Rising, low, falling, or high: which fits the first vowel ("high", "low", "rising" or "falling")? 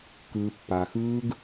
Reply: low